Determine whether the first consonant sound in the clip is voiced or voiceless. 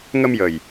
voiced